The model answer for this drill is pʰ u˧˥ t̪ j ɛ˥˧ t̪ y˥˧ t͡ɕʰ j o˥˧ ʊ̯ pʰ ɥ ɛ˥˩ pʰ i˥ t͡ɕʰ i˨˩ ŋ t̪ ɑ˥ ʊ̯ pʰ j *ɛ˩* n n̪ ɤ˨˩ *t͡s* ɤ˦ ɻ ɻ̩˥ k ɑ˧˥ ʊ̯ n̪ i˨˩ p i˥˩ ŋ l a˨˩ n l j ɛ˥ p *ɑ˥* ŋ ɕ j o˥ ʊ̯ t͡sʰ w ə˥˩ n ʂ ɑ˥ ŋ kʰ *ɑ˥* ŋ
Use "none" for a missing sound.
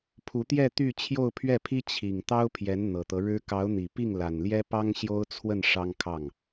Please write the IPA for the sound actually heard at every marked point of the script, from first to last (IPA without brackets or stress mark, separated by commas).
ɛ˧˥, t̪, ɑ˥, ɑ˥˩